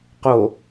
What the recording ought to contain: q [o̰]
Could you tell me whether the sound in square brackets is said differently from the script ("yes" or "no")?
yes